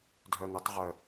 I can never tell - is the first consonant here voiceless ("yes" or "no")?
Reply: no